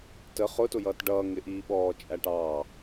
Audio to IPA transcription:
t ə χ ʊ t ʊ j ʌː t ɖ ʌː ŋ ɪ ʔ iː ɓ ɔː t͡ʃʼ æ ʈ ɑ

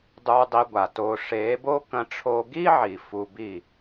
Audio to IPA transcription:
dˤ u˧ dˤ i˧ ɡʷ a˨ t oː˧ ʂ eː˨˦ b o˦ k ɐ̃˧ ʈ͡ʂʰ o˧ ɡ iː˦ ʕ i˨ f u˧ b i˦˨

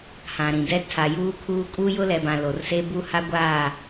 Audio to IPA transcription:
h ã˨ ɾ ĩ˨ d ɛ˦ tʰ a˨ j uː˦ kʰ uː˦ kʼ uː˦ j ʊ˦ l ɛ˨ b ã˨ l o˨ r s e˦ b u˦ h a˦ ɡʷ aː˦˨

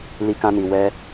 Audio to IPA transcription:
l i˦ k ã˦ n i˧ w ɛ˦

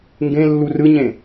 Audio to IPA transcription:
ŋ ɡ ẽ lː u r ɯ ɲ ẽ

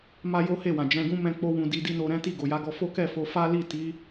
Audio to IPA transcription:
m a˦ j o˦ h e˦˨ w ã˨ d͡ʒ ɛ̃˧ ɡ ũ˦ m ɛ̃˦ k͡p o˦ w ũ˧ d i˧ d i˦ n o˧ ɾ ɛ̃˦ t i˦˨ ɡ o˨ j a˨˦ ɡ ɔ˧ f o˦ k ɛ˦˨ f o˧ f a˦ l i˦˨ t i˨˦

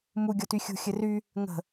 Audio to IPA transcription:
m u ɡʲ ɔ t y xʲ ṳ xʲ ɘ r y | ŋ ə̤

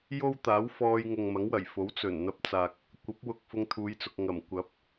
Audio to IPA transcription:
j o˥ w t̪ aː˨˥ w f ɔː˧ j ŋ ʊ˨ ŋ m ɐ˨˥ ŋ w ɐ˨˩ j f o˨˥ w t͡s ɵ˨˩ n n̪ ɐ˧ p̚ t͡s aː˨ k̚ | kʷ ɐ˨˥ p̚ w ʊ˨ k̚ f ʊ˧ ŋ t̪ʰ uː˨˧ j t͡s ʊ˨ k̚ ŋ ɐ˨˩ m kʷ ɐ˨˥ p̚

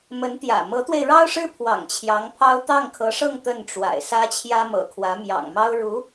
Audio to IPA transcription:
m ə˧˥ n t̪ j ä̰˨˩ m ɤ˧˥ t̪ w e˧ ɪ̯ ɻ ɑ˥ ʊ̯ ʂ ɻ̩˥ pʰ w ɑ̰˨˩ ŋ t͡ɕʰ j ɑ˧˥ ŋ pʰ ɑ˥ ʊ̯ t̪ ɑ˥˩ ŋ kʰ ɤ˧˥ ʂ ɤ˥˧ ŋ t̪ ə˥˩ n ʈ͡ʂ w a̰˨˩ ɪ̯ s ä˥ t͡ɕʰ j ä˥ m ɤ̰˨˩ kʰ w ä˧˥ m j ɑ̰˨˩ ŋ m ɑ˥ ʊ̯ ɻ u˧˥

